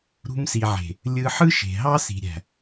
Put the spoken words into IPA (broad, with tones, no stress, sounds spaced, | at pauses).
ɾ ṳ˧ m s i˨ ʕ e̤˨ | lʲ ɯ˧ ħ ɯ˦ ʃ e̤˨ ɦ ɑ˦ s i̤˨ ɾʲ æ̤˨